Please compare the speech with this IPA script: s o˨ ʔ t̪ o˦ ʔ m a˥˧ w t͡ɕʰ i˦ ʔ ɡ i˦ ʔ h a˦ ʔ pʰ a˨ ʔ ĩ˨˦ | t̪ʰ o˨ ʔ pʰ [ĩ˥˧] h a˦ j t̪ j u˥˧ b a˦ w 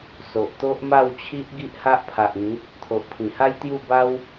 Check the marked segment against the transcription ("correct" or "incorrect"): incorrect